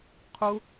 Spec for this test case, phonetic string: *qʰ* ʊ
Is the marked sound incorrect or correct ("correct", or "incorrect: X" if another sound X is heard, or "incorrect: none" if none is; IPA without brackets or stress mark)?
correct